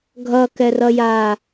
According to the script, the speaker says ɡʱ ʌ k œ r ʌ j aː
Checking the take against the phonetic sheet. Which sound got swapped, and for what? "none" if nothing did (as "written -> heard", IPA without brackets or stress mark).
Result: œ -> ɛ